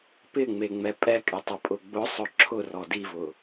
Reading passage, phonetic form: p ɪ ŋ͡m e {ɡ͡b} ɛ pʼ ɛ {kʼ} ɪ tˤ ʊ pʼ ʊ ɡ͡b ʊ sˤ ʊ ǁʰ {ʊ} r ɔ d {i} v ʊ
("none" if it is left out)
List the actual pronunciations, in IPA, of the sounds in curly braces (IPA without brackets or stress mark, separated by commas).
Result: ŋ͡m, kʼ, ʊ, i